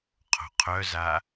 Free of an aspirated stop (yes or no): no